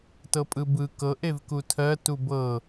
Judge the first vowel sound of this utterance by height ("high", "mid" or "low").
mid